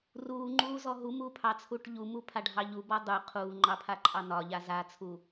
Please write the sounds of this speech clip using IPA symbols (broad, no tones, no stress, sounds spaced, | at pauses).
r uː ŋ͡ǃ uː z ɔ ɦ u m uː pʰ ɑ t͡sʰ uː ʈ ʎ u m u pʰ a ɖʱ ɑ ʎ u b ɔ dˤ u qʰ uː ŋ͡ǃ ɑ pʰ a ǃʼ ɑ n ɒ ʎ a z a t͡sʰ u